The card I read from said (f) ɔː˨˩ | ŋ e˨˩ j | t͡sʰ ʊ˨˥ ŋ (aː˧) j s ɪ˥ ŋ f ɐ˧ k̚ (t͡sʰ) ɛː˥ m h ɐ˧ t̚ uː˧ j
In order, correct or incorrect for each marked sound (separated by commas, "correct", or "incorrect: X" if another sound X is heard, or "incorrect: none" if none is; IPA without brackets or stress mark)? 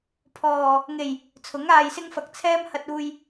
incorrect: pʰ, correct, correct